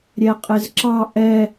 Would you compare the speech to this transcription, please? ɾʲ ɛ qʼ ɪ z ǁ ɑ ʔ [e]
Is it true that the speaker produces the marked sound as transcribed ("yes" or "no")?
no